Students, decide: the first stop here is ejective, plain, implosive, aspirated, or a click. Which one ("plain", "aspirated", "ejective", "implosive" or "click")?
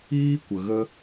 plain